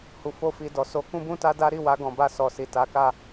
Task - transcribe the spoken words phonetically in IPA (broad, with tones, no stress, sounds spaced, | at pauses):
h u˧ f o˦ f i˧ d ɔ˧ s o˧ k ũ˦ b ũ˦ t a˦ d a˦ ɾ i˦˨ w a˧ ɡ ɔ̃˨ b a˧ s ɔ˨ s i˨ t a˨˦ k a˦˨